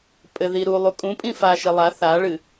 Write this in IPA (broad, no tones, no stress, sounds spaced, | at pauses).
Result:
pʼ ɘ ð i ɾ u lˠ u kʼ ũ pʼ ĩ f a ʃ i lˠ a θ a ɭ ɨ